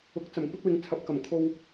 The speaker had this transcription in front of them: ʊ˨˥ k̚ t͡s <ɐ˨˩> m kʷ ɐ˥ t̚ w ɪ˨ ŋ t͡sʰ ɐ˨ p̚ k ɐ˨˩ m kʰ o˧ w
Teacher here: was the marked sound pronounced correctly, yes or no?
yes